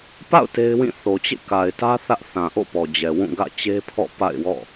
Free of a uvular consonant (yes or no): yes